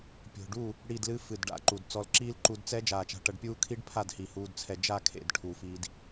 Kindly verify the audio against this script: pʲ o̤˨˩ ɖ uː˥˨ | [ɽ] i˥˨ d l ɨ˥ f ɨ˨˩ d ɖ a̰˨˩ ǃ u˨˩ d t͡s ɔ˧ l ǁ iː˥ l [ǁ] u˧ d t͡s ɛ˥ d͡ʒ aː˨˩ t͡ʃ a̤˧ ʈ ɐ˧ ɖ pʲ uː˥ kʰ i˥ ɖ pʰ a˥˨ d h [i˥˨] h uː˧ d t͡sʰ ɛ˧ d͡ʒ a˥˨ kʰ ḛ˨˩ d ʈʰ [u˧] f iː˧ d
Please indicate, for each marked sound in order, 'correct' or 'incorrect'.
correct, incorrect: ǃ, incorrect: i˨˩, incorrect: u˨˩

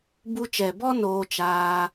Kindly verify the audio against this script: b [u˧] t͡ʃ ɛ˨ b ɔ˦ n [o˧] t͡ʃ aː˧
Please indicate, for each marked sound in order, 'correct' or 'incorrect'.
correct, incorrect: oː˧

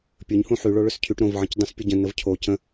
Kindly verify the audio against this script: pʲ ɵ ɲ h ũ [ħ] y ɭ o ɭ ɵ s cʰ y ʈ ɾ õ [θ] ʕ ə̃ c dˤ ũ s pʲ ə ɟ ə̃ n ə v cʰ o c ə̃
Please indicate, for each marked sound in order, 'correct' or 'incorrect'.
correct, incorrect: v

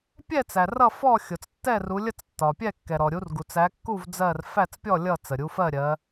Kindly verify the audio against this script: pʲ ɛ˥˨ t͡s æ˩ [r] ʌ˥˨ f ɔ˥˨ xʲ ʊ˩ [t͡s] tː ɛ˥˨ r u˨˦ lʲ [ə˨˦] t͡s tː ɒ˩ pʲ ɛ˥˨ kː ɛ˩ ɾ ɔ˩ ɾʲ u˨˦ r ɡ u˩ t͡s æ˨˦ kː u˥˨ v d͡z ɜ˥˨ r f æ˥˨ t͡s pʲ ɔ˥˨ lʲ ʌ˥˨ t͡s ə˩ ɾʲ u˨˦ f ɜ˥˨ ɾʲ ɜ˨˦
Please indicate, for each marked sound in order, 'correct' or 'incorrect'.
correct, correct, incorrect: ə˥˨

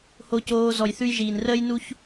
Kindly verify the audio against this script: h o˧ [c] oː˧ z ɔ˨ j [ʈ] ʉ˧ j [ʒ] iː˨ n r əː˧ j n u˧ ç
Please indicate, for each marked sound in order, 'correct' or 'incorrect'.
correct, incorrect: θ, correct

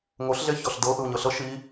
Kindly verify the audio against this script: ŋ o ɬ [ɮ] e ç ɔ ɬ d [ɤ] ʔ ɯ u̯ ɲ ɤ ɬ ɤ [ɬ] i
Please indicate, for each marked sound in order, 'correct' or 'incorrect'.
correct, correct, incorrect: ʃ

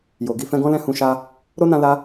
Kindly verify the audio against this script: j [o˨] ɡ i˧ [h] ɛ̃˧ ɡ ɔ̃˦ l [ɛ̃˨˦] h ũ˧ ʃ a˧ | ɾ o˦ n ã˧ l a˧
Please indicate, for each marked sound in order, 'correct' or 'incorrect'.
correct, incorrect: f, incorrect: ɛ̃˦˨

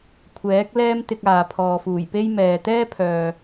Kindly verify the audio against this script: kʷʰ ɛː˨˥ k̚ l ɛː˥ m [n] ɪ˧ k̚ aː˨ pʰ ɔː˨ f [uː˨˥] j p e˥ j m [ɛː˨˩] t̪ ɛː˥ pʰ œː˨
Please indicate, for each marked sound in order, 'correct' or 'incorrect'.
incorrect: t̪, incorrect: uː˨˩, incorrect: ɛː˨

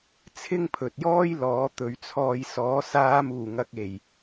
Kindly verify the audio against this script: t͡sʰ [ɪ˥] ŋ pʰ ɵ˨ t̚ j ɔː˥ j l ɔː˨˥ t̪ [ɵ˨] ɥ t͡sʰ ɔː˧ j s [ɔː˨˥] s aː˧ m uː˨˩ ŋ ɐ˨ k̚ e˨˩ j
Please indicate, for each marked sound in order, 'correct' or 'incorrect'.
correct, correct, correct

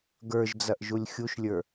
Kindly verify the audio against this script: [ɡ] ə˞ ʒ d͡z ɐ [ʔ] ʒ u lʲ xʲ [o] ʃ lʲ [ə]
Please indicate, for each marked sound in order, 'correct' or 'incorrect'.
correct, correct, incorrect: u, incorrect: ə˞

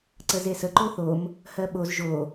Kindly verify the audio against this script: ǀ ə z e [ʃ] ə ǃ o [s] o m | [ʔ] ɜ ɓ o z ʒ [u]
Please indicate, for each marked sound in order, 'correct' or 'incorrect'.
incorrect: s, incorrect: θ, incorrect: h, incorrect: o

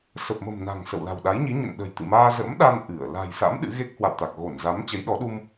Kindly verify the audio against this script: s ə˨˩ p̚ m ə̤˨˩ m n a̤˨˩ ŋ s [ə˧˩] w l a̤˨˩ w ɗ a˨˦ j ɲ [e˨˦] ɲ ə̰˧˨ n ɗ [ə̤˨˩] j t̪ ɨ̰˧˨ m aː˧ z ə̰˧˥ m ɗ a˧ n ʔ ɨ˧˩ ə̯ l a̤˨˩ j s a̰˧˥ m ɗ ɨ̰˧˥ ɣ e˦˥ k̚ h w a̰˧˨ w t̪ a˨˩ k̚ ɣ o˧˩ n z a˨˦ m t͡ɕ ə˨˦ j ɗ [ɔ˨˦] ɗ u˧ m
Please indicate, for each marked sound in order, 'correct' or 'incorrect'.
incorrect: ə̰˧˨, incorrect: i˨˦, correct, correct

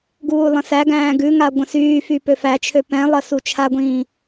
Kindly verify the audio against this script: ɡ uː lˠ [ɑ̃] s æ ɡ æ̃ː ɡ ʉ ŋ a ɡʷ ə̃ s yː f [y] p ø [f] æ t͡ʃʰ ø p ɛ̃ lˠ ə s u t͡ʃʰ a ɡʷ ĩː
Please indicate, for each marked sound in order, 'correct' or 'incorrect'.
incorrect: ə̃, correct, correct

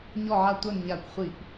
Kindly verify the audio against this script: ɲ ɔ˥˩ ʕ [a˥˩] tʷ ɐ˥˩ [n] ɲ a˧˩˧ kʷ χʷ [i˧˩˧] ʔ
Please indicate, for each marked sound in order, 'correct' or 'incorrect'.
correct, correct, correct

